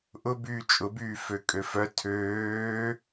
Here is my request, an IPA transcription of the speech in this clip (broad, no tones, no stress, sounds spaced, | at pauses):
ʔ ʊ b yː t͡ʃʼ ʊ b yː f ø kʼ ø f œ tʰ øː